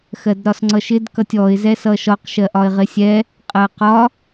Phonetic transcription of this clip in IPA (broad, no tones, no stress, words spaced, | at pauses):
xɜdɾɒsŋ͡ǀʌʃɪd kʌtʲɔɪ̯ zɛsʌʃɒq ʃɜʔɒɪ̯ʁɪsʲɛ | qʼɜqɒ